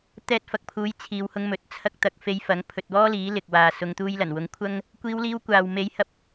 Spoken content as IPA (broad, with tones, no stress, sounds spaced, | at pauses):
t̪ ɛː˧ t̚ f ɐ˨ k̚ pʰ uː˨˥ j t͡sʰ iː˨˧ w h ʊ˧ ŋ m ɵ˨˥ t̚ t͡sʰ ɐ˧ k̚ t̪ ɐ˨ k̚ f e˨˧ j f ɐ˨˥ ŋ pʰ ɵ˨ t̚ w ɔː˥ l iː˨˥ l ɪ˨ k̚ w aː˨ s ʊ˨˧ ŋ t̪ uː˧ j l ɐ˨˩ n w ʊ˨˥ ŋ kʷʰ ɐ˥ ŋ | kʷ iː˧ w l iː˧ w kʷ aː˨ w m e˧ j h ɐ˧ p̚